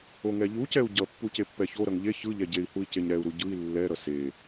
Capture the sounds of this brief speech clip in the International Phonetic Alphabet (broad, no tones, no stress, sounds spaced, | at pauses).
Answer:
o ŋ ɛ ʎ u c ɛ u̯ ɟ ʌ pː u c e pː ɛ ç o ɾ ʌ ŋ ʎ e ç ɯ ʎ ɛ ɟ e i̯ h u i̯ c e ɲ ɾ ɛ u̯ ɾ u ɟ ɯ i̯ lː ɛ ɾ ʌ s e